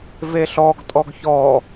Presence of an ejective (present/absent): present